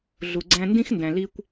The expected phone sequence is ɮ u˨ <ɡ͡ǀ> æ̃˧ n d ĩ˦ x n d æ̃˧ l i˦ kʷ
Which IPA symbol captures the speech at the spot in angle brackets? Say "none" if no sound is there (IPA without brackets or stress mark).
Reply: ɡ͡ǀ